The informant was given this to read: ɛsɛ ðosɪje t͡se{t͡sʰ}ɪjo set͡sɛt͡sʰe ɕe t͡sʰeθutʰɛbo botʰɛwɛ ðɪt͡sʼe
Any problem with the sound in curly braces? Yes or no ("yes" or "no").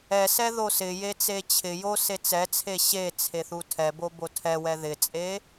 yes